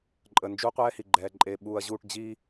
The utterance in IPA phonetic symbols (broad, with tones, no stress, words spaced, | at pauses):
ǃʼə˨nd͡ʒu˦ qʷɛː˦hi˨ɡ͡ǃɛː˨ǃʼeː˨ ɓuː˨ɐ̯ʑuː˦˨ʈ d͡ʑiː˦